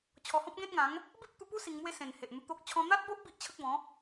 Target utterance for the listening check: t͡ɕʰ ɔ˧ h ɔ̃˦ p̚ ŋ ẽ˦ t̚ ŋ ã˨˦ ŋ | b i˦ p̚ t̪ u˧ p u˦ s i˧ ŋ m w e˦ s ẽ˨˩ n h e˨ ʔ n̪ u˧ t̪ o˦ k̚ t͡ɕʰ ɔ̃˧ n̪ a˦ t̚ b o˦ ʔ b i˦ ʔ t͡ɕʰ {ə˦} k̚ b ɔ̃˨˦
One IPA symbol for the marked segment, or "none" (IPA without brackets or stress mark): ə˦